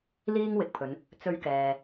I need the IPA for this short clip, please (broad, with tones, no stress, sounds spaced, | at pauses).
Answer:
l iː˥ ŋ w ɪ˨ k̚ pʰ ɵ˨˧ n | t͡s ɵ˧ ɥ k ɛː˨